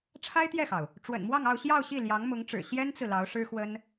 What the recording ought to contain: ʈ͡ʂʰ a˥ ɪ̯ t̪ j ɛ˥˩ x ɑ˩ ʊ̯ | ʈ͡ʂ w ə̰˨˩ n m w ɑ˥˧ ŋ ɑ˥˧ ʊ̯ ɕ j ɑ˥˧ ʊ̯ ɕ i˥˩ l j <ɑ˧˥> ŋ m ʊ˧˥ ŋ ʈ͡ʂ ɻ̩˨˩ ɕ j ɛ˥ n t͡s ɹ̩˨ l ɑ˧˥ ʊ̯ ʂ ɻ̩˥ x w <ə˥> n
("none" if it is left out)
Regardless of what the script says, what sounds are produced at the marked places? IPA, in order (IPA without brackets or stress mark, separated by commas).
ɑ˧˥, ə˥